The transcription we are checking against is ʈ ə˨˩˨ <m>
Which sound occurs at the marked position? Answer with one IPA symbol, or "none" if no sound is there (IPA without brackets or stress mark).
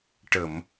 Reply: m